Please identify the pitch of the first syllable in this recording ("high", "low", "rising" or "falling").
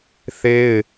high